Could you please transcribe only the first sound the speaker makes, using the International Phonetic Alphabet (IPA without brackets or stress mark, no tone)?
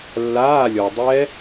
lː